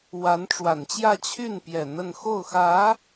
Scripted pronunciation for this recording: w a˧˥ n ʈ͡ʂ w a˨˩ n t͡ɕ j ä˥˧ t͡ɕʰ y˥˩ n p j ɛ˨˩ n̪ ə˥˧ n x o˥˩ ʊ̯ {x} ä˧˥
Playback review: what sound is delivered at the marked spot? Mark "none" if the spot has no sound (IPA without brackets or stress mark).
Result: x